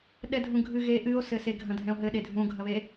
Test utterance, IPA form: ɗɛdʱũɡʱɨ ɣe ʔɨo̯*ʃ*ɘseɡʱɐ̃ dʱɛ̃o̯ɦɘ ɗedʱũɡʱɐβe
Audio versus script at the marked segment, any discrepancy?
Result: yes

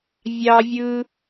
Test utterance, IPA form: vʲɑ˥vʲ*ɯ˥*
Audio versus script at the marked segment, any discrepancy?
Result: no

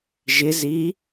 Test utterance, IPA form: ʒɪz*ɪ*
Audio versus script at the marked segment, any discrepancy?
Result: yes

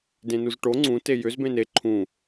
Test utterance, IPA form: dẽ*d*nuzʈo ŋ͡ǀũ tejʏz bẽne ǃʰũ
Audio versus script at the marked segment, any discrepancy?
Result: yes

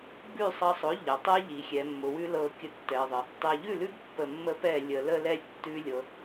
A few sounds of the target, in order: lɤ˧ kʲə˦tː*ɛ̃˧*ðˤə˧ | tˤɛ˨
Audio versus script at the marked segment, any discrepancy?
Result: yes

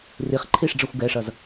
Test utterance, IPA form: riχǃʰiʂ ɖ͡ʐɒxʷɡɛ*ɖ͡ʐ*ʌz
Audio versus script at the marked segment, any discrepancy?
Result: yes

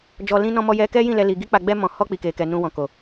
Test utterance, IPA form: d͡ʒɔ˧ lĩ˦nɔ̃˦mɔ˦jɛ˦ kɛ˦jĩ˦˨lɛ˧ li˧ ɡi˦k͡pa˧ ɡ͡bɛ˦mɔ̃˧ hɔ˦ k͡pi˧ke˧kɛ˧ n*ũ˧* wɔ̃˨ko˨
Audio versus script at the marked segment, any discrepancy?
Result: no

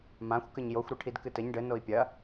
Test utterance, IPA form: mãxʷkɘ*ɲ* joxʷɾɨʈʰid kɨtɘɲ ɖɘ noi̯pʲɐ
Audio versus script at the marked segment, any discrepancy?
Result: no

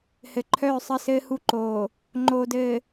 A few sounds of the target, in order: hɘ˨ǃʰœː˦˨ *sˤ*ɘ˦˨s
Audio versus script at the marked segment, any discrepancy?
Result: no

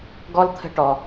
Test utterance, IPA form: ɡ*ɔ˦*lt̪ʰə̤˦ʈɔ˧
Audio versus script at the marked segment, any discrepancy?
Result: no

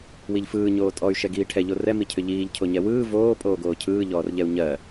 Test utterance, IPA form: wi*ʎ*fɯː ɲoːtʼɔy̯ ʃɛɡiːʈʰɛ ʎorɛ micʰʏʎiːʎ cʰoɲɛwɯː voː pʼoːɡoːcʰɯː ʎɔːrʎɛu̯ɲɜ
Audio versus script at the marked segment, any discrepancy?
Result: no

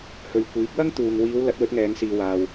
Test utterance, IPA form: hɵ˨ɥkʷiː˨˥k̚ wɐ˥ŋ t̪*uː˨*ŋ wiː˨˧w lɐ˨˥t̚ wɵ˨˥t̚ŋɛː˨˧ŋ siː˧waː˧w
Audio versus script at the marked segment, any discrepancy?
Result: no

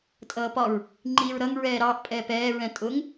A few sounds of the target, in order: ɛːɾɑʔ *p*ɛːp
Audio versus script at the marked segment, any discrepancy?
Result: yes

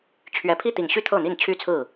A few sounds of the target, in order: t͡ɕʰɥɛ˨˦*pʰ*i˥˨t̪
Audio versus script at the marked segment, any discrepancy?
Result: no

